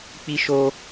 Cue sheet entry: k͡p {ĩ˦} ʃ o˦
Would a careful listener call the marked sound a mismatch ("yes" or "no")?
yes